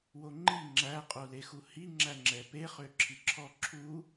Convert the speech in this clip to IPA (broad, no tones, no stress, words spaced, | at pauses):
woŋ͡ǃi ŋ͡ǁæ qʼolexuhi ŋ͡ǁæŋ͡ǁɛpe χøǁʰiǁʰɔ ǁʰu